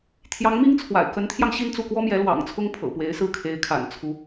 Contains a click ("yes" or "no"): no